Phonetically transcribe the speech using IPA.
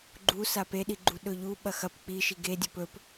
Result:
ɡ͡ǃ u s a p e ɗ i ɡ͡ǃ u ɗ ɵ ʎ u ɓ ɐ x ɐ p k͡p i ʃ i ɡ e dʲ o p ɵ p

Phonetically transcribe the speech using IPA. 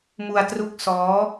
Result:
m u˧ a̯ t r u˦˥ k̚ s ɔː˦˥

